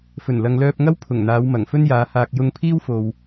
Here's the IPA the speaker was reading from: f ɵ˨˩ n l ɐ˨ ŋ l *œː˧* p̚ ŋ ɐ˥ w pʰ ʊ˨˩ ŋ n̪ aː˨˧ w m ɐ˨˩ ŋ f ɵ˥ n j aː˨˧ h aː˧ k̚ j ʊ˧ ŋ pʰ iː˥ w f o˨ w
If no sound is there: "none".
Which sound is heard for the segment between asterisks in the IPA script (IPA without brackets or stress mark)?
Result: œː˧